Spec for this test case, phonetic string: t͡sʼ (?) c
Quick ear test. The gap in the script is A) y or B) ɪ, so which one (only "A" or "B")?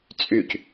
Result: A